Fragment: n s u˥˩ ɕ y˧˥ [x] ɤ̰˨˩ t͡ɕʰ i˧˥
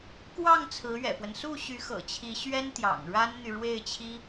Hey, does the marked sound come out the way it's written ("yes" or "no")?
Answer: yes